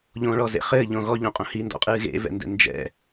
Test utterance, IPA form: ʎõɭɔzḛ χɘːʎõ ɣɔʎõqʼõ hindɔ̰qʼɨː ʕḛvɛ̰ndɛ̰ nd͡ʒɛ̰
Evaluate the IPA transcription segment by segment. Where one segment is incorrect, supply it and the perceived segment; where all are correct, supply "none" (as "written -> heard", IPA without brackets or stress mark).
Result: ʕ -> ɣ